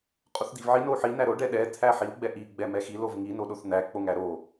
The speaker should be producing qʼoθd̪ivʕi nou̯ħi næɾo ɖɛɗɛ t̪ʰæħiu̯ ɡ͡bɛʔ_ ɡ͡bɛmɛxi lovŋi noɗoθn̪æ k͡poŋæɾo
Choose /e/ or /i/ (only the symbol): i